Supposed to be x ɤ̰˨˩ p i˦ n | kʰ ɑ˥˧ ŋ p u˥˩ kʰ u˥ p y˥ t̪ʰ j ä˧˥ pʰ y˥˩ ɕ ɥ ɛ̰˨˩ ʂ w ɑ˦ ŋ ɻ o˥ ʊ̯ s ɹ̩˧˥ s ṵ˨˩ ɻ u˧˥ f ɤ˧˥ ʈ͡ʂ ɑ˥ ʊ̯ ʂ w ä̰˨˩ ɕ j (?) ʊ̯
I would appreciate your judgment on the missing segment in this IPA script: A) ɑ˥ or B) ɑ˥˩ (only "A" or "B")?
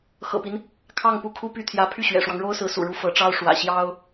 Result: A